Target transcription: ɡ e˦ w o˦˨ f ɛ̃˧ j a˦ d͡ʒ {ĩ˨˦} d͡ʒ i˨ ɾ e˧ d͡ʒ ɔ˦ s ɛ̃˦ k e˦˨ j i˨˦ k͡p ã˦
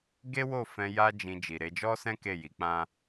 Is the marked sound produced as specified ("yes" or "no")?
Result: no